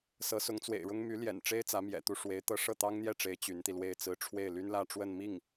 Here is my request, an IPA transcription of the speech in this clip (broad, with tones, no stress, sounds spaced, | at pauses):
s ɤ˧˥ s ʊ˧˥ ŋ t͡s w ḛ˨˩ ɪ̯ ɻ ʊ˥ ŋ m y˧˥ l j ɛ̰˨˩ n ʈ͡ʂ e˥ ɪ̯ t͡s ä˧˥ m j ɛ̰˨˩ t̪ u˥˩ ʂ w e˧˥ ɪ̯ t̪ ɤ˥ ʂ ɤ˥˩ t̪ ɑ˥ ŋ n̪ j ɛ˥˩ ʈ͡ʂ e˧˥ ɪ̯ t͡ɕ y˧˥ n t̪ i˧ l w e˥˩ ɪ̯ t͡s ɹ̩˥ ʈ͡ʂʰ w e˥˩ ɪ̯ l y˥ n l ä˥˧ ʈ͡ʂ w ə˥˧ n m i˥˩ ŋ